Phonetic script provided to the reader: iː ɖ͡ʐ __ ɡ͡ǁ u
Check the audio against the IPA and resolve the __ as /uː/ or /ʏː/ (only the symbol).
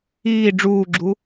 uː